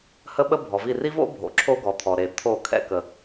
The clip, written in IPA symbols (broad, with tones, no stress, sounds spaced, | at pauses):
h ə˦ ɓ ə˦ bʱ ɔ˨ v i˦˨ r i˦ v o̰˦ bʱ o̰˨ ǁʰ o˦ ɡ ɔ˨ t̪ʰ ɔ˨ ɾ e˨ t̪ʰ o˦˨ kʰ ɛ̰˦ k ə˨